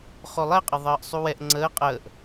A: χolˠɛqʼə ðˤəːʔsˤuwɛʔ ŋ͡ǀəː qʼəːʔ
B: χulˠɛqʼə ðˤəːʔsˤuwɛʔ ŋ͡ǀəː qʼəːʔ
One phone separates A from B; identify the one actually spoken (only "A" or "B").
A